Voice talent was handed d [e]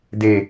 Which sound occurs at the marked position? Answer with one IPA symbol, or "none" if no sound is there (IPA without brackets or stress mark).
e